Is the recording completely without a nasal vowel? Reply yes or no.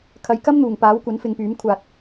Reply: yes